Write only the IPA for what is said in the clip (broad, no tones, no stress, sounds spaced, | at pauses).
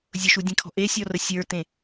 zʲ ʊ ʃ u dʲ ẽ kʰ ɔ̤ ʔ e sʲ ɔ r ə sʲ ə˞ t ẽ